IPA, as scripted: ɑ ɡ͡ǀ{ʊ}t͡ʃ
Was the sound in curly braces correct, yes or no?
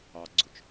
yes